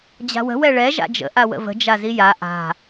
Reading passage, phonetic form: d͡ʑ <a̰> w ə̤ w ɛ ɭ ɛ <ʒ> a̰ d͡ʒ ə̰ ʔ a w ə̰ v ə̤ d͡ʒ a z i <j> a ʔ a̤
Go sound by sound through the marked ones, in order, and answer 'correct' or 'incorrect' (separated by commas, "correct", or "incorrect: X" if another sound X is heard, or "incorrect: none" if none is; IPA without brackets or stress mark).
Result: incorrect: a̤, correct, correct